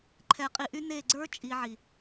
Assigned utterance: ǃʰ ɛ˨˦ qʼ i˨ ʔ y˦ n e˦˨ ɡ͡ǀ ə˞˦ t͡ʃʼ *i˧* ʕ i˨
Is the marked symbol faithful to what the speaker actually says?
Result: yes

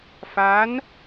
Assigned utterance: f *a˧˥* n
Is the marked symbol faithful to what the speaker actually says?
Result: yes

